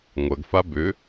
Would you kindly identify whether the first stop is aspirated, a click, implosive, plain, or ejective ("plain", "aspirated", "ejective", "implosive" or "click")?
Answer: plain